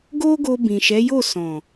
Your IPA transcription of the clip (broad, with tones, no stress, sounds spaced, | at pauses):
ɡ o˦ ɡ o˧ b ĩ˨ ʃ ɛ˨˦ j o˦˨ s ɔ̃˨